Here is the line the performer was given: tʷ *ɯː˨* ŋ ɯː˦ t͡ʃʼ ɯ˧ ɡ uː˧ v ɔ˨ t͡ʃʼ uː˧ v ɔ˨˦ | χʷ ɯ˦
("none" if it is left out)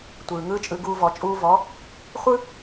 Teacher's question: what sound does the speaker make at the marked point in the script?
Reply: ɯː˨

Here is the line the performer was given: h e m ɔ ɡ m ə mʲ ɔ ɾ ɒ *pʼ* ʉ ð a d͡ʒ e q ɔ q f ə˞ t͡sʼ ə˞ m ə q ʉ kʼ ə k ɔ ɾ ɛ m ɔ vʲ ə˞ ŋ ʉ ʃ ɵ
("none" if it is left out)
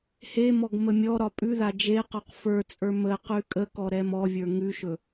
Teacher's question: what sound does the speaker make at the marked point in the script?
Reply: pʼ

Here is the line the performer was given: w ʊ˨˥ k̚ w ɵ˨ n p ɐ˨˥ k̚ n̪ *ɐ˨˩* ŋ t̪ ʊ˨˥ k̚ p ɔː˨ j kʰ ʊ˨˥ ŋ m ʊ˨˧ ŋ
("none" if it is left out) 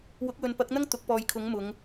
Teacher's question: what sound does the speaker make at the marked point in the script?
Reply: ɐ˥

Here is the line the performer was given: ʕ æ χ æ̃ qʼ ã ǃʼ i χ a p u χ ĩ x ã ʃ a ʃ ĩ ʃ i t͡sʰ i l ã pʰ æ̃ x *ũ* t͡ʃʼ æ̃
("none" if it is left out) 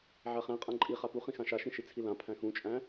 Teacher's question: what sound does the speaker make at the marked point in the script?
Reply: ũ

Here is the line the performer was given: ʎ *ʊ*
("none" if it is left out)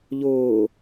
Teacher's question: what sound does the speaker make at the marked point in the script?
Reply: ʊː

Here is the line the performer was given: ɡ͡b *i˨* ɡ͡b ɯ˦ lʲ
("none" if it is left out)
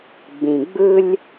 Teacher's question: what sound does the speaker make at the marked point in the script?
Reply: ĩ˨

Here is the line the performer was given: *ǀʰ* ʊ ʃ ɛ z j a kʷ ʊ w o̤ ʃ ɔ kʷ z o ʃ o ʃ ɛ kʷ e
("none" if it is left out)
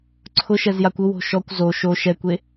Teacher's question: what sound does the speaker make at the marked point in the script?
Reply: ǀʰ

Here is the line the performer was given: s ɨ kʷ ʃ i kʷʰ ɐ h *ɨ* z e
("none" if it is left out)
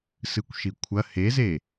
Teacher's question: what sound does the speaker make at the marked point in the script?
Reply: e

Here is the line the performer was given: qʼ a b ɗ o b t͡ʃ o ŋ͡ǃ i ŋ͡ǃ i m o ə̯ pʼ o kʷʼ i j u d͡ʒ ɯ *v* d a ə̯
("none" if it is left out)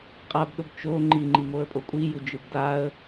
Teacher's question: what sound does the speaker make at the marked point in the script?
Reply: b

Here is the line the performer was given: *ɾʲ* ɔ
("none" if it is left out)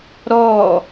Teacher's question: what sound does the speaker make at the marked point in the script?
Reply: ɾ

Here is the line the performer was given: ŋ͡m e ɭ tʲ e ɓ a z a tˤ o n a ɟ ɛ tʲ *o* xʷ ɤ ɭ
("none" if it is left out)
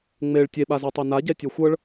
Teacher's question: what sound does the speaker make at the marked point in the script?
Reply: ɤ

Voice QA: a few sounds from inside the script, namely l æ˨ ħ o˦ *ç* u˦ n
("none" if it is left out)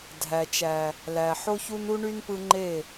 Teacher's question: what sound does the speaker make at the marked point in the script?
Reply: ç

